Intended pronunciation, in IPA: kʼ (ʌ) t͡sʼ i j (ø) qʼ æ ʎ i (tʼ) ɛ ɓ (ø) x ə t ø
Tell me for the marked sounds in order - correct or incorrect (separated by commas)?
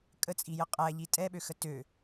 incorrect, incorrect, correct, correct